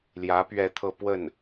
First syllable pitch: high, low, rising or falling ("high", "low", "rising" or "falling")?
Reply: rising